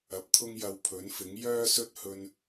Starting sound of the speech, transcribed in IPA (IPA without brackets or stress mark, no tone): ɐ